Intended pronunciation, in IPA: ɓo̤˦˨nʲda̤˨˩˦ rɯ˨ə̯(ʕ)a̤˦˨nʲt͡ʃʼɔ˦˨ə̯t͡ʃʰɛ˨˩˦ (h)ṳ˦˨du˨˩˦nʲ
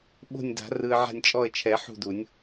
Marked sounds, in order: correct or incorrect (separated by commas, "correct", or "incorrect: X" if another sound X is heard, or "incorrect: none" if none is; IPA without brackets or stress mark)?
correct, incorrect: ħ